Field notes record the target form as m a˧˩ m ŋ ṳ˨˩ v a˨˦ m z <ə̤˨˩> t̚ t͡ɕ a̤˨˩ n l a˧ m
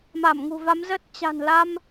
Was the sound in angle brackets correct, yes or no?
no